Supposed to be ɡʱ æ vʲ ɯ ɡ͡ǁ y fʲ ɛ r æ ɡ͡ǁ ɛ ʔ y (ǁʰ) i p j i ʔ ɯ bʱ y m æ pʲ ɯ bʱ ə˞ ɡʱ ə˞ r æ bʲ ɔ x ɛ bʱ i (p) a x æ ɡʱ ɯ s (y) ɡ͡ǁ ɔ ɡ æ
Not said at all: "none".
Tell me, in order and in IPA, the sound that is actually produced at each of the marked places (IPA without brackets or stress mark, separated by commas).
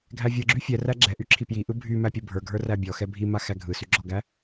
ǁʰ, m, y